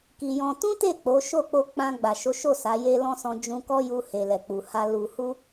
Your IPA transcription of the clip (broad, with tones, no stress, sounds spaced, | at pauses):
k i˧ j ɔ̃˦ t ũ˦ t e˦˨ k͡p o˨˦ ʃ o˦˨ k͡p o˧ k͡p ã˧ ɡ͡b a˨ ʃ o˨˦ ʃ o˦˨ s a˨˦ j e˦ l ɔ̃˦ s ɔ̃˧ d͡ʒ ũ˦ k ɔ˦ j u˧ h e˨ l ɛ˨ k͡p u˨ h a˧ l u˨ h u˧